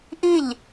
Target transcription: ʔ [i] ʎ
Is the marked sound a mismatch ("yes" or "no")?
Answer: no